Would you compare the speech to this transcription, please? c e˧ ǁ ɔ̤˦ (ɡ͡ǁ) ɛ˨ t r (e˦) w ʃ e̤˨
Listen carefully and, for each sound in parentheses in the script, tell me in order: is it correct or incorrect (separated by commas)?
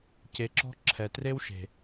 incorrect, correct